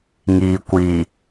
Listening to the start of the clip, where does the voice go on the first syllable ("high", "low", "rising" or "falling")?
low